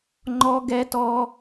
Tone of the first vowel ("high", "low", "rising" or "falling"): high